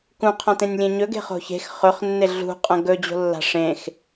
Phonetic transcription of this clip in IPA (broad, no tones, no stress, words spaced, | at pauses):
kũqʰãtẽnʲlʲẽ ɲɵɡe̤χo̤ çe̤x χɵχnːe ɮṳqʼɐ̃ ɡɵd͡ʑo̤lːa̤ ʂẽx